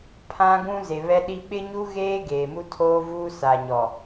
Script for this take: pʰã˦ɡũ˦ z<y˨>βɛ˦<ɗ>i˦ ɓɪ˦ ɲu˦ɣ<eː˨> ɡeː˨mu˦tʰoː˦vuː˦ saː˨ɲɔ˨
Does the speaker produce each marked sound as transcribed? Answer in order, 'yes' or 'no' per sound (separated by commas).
no, yes, no